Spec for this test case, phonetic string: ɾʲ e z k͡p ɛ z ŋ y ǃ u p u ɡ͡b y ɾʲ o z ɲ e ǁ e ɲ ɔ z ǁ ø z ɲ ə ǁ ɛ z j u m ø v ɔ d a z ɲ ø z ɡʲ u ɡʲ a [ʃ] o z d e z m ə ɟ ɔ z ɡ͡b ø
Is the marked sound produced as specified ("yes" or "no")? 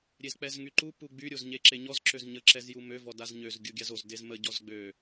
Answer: no